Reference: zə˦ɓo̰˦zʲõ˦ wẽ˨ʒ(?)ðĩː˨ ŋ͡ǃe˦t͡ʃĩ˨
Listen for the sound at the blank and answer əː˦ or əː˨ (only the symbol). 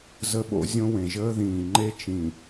əː˦